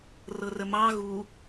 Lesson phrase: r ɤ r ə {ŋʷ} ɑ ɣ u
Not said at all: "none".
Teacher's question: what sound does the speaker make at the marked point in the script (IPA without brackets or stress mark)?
m